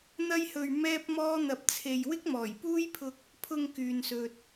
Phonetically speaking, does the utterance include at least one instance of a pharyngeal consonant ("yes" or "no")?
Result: no